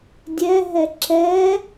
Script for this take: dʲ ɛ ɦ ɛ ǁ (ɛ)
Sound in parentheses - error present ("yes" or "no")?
no